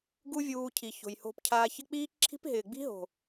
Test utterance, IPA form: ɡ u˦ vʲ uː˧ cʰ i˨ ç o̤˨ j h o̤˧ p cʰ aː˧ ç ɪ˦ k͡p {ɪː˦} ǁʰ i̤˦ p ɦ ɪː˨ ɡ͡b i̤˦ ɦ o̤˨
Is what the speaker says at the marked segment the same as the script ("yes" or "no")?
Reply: no